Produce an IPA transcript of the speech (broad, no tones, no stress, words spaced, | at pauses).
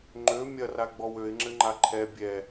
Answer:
ŋ͡ǃø mʲɐraɡ͡bɔw øɪ̯ŋ͡ǁɘŋ͡ǃa ǃʰɛ bʲɛ